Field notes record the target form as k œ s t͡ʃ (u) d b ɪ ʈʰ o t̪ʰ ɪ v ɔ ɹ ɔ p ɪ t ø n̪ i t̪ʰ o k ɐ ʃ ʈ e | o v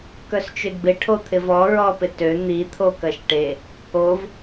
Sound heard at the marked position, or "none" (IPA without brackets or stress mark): ø